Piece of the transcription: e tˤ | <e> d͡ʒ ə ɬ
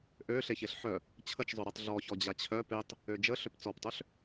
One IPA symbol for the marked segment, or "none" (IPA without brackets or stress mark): ø